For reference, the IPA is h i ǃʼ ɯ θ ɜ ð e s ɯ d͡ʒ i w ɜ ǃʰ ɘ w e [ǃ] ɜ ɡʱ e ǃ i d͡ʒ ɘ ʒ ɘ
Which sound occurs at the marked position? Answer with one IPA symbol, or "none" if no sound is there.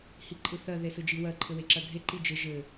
ǁ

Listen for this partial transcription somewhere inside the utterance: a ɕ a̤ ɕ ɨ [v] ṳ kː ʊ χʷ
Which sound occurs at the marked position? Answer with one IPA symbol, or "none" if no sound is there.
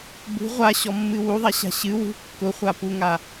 w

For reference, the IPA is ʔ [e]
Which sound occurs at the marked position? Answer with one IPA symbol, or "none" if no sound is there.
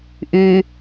y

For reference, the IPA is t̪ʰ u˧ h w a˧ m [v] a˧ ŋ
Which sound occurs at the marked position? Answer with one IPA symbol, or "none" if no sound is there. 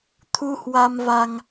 v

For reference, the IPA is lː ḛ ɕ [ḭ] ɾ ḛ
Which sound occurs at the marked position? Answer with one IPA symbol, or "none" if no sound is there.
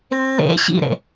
ḭ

